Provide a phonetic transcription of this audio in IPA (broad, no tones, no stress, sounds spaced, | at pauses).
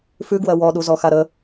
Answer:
f ʉ ɡ w ɜ w ɔ ɗ u z ɔ x a ɾ ə